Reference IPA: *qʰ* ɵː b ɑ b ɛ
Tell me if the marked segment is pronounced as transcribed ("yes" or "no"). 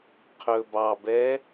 yes